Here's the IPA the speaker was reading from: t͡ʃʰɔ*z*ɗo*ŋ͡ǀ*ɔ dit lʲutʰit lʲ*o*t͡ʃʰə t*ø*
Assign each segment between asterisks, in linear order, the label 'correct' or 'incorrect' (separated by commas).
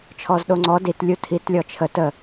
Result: correct, correct, incorrect, incorrect